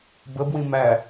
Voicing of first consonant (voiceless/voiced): voiced